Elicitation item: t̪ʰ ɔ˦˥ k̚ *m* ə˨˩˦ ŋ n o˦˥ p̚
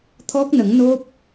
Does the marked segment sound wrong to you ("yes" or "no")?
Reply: yes